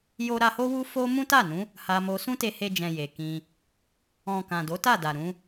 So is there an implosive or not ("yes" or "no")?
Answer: no